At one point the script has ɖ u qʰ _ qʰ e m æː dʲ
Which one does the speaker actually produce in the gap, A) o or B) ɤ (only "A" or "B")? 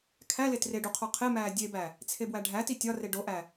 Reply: A